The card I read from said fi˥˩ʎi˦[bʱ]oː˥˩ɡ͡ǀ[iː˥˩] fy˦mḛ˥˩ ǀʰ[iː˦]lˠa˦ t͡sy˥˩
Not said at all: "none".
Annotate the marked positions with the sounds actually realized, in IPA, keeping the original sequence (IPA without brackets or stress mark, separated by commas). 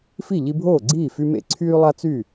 bʱ, iː˥˩, yː˦